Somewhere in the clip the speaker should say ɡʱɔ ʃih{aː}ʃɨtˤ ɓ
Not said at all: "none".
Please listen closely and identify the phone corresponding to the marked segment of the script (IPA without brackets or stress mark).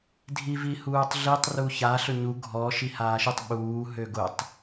aː